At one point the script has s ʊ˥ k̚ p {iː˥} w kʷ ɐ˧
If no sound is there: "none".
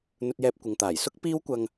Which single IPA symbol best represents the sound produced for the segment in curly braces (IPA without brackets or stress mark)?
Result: iː˥